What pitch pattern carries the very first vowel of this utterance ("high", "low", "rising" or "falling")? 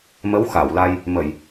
rising